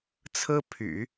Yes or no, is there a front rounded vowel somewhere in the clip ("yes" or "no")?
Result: yes